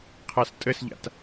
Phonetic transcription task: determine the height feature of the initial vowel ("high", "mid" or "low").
low